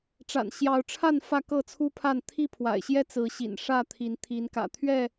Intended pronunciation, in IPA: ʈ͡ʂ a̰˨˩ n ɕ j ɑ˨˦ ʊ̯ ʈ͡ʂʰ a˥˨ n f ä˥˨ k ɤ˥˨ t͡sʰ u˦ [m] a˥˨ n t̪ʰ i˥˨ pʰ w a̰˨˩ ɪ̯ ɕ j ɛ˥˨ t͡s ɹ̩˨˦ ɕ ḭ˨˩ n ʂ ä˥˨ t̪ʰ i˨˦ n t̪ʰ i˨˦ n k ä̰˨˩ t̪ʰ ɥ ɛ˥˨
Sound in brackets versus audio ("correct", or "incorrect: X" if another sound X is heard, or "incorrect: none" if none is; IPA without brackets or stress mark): incorrect: pʰ